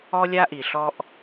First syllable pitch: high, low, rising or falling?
high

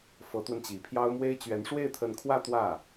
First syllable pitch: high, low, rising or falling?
rising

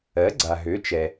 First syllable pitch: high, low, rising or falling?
rising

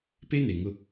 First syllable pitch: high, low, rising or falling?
high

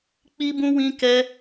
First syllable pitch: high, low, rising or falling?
high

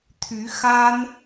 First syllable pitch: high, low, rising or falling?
rising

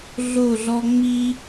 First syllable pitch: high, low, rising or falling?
falling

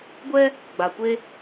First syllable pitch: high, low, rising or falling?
high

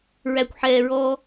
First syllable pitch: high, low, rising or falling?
low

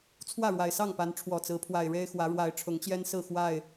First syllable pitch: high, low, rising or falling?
falling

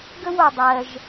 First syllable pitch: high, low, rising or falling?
high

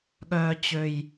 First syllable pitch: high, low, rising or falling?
low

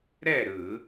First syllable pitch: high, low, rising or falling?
falling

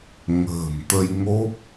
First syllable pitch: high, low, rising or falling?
low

